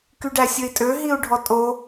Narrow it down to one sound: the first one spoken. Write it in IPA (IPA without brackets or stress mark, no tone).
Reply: k